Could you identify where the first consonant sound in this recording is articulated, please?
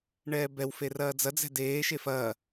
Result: retroflex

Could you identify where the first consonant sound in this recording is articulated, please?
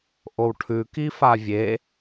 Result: glottal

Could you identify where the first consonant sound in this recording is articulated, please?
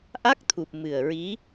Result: glottal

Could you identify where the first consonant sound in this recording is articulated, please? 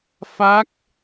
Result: labial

